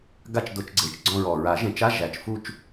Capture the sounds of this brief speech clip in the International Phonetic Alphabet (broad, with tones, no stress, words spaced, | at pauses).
ɡa˦˨t͡ʃ do˨˩˦t͡ʃɡ͡ǀe˨˩t͡ʃ ɡ͡ǀɔ̃˦˨ɹɔ˨˩ ɹa˨˩˦ʒẽ˨˩˦t͡ʃa˧˥˧ ʒæ˨˩˦t͡ʃ fu˦˨t͡ʃ